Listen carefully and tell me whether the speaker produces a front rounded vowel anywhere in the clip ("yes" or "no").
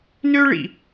yes